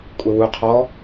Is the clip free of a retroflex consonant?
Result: yes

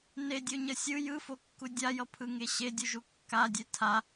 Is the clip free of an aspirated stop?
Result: no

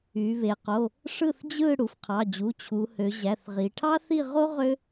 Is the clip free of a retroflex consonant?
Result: no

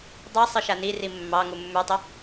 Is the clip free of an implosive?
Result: yes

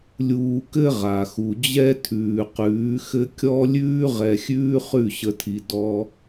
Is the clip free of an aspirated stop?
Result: no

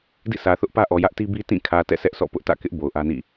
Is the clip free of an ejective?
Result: yes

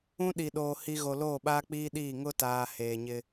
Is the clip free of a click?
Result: yes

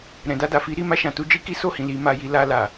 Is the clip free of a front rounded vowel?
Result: yes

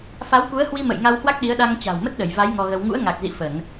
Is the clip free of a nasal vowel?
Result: yes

